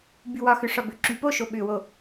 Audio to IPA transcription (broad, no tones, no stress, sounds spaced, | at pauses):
b y w ɒ x ʏ ʂ ɒ b ʏ ǁ y p o ʃ o ɓ ʏ w o